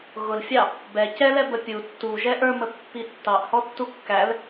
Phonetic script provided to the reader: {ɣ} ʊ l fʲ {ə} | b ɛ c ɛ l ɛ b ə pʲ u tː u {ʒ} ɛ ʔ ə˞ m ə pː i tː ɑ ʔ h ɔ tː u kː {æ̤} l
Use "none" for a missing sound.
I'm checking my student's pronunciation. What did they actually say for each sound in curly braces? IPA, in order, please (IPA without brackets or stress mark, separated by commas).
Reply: ɣ, ɑ, ʒ, æ